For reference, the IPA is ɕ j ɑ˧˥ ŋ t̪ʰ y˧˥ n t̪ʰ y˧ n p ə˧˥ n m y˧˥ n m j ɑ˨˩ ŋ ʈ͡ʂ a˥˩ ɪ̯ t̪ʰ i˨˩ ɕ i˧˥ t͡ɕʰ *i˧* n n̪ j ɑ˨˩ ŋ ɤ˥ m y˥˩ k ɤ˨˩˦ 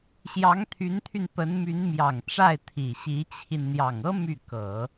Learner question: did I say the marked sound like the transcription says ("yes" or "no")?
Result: yes